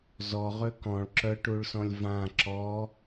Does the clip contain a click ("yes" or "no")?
yes